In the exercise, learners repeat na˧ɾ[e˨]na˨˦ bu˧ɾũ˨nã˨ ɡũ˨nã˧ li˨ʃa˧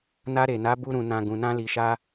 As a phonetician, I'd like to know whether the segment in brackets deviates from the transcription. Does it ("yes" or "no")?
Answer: no